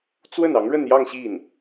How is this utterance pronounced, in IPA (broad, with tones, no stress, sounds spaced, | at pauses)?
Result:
t͡s w ə˥˩ n ɑ˧˥ ŋ ɻ ə˥˧ n j ɑ˥˧ ŋ ɕ i˥˩ n